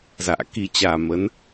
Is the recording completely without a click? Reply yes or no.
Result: yes